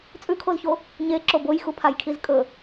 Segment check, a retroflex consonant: absent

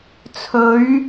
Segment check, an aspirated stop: present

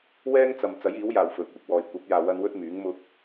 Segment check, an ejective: absent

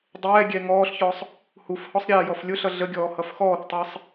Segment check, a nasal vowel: absent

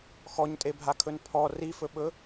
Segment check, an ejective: present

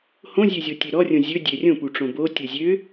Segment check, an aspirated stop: absent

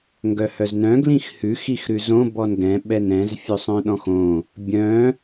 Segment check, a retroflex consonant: absent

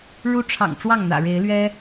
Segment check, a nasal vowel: absent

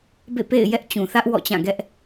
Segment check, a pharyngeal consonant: absent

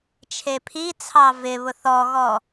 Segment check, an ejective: absent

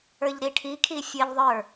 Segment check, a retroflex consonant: present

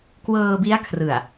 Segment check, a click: absent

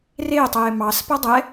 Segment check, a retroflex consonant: absent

